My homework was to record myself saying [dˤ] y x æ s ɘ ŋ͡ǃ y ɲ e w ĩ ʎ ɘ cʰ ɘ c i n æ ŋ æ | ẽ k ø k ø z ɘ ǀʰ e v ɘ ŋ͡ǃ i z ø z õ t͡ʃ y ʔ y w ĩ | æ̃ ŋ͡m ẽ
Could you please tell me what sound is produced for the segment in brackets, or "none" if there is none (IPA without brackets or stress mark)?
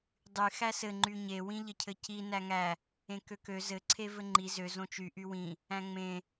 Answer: dˤ